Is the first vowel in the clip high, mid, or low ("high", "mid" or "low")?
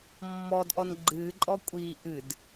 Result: mid